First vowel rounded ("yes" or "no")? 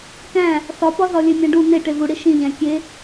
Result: no